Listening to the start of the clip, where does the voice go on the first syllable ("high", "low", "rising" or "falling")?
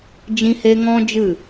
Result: high